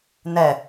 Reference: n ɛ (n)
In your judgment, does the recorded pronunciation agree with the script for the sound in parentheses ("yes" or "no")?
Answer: no